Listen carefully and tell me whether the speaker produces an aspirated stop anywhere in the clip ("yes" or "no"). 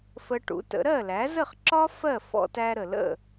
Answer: no